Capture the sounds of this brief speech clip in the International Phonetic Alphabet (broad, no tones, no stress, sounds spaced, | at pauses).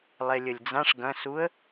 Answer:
lˠ e lʲ ə lʲ d͡z ã ʂ ɡ ɐ̃ s u ə̯